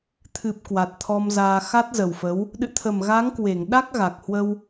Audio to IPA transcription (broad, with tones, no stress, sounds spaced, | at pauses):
t̪ʰ ɨ˨˩ p̚ k w a˨˩ t̚ t̪ʰ ɔ˧ m z aː˧ x a˦˥ t̚ z ə˨˩ w f ə˨˦ w | ɗ ɨ̰˧˨ t̪ʰ ə˨˩ m ɣ a˨˦ ŋ k w e˧˩ ŋ ɗ a˦˥ k̚ ɣ a˨˩ k̚ h w ə˧ w